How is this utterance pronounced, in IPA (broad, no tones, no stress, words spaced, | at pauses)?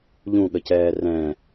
ʎũɠəcɛː rɛ̃